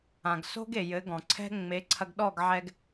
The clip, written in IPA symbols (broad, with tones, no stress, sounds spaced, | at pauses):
ã˩ ɡ s o̤˥ ɡ e˩ j ɘ˩˥ ɡ ɔ̃˩ ǀʰ ɛ̤˥ ŋ͡m e˩˥ ǀʰ ɐ˧ ɡ ɗ ɔ˥˩ ɡ ʕ ɛ˧ ɡ